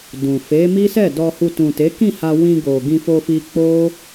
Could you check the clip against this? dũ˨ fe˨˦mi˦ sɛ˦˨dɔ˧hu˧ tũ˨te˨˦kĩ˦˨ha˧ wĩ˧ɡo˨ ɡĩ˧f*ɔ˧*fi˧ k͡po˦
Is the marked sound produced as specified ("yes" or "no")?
no